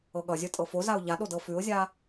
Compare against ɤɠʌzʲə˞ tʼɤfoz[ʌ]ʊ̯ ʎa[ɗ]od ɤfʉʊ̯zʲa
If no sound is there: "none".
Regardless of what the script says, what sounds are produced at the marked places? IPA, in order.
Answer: a, ɗ

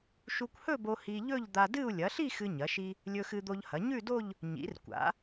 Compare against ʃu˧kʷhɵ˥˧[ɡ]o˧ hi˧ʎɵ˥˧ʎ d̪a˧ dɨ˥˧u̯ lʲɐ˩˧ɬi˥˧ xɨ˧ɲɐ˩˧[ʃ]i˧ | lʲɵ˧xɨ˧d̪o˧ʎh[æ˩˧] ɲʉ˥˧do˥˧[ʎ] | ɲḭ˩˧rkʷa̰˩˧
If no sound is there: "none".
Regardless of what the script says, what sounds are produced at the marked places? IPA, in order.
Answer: b, ʃ, ɐ˩˧, ʎ

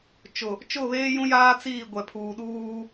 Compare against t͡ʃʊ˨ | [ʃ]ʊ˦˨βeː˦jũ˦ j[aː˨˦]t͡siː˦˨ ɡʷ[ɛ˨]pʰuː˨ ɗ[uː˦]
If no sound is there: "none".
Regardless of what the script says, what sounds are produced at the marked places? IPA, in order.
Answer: t͡ʃ, aː˦, ɛ˨, uː˦

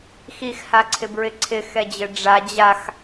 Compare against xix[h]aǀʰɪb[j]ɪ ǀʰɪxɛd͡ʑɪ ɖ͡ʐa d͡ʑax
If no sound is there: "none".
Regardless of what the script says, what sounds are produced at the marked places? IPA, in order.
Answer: h, ɹ

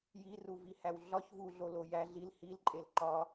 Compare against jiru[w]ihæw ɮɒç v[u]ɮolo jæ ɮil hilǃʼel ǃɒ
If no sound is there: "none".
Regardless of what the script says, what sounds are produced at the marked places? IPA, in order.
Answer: v, u

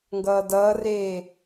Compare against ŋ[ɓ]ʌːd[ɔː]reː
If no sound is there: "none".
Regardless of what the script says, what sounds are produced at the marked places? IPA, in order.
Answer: ɡ, ʌː

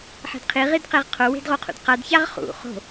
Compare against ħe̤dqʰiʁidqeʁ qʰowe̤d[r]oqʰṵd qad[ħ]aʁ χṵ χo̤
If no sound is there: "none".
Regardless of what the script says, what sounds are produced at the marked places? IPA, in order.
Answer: ʁ, ç

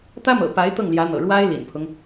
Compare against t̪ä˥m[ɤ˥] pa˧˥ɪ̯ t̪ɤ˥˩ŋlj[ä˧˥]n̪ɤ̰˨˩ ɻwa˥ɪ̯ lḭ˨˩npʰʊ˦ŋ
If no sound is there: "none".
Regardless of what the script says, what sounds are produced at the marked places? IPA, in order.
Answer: ɤ̰˨˩, ä˧˥

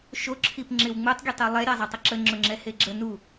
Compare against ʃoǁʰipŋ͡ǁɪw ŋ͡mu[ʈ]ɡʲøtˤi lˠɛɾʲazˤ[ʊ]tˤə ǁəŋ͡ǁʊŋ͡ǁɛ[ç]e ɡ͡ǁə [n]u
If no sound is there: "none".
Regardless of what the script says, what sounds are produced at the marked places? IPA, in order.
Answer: tˤ, ə, h, n

